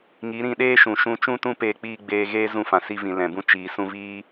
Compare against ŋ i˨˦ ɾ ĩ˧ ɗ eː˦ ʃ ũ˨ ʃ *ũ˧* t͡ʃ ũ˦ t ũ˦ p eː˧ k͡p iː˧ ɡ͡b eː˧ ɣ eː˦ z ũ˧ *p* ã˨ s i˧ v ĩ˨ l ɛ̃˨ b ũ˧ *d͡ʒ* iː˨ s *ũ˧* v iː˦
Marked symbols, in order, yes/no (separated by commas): yes, no, no, yes